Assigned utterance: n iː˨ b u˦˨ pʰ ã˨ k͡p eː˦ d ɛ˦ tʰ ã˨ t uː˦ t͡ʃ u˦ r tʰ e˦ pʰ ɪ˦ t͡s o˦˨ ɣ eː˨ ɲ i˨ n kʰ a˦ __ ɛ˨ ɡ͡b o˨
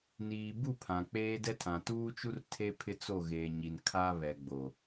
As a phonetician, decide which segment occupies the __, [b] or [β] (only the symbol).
β